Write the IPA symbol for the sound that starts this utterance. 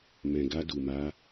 m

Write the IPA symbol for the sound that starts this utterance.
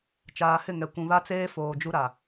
t͡ʃ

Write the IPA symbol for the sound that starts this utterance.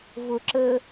v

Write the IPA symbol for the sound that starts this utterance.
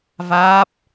v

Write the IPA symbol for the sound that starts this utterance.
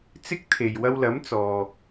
t͡s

